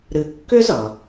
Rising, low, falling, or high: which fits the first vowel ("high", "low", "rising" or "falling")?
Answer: low